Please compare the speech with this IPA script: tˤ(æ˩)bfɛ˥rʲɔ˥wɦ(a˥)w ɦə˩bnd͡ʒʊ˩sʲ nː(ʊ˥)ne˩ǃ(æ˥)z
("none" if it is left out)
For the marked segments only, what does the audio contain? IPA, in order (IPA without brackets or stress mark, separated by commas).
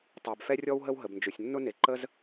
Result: æ˩, ə˥, ʊ˥, ə˥